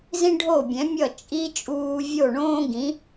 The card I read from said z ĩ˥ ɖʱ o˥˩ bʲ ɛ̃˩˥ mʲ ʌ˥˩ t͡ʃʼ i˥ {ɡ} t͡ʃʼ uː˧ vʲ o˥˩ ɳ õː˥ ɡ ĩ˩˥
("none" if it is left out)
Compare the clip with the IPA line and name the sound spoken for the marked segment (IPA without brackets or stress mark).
none